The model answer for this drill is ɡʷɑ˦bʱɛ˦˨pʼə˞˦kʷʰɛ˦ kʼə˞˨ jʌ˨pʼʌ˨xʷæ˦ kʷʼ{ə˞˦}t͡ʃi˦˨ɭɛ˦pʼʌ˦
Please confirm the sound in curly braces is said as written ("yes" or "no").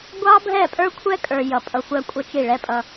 no